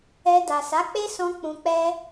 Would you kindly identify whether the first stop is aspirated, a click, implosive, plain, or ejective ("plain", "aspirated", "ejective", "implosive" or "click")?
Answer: plain